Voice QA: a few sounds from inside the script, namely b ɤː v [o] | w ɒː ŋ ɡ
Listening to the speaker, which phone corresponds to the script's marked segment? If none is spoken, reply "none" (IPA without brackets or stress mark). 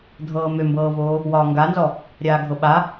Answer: oː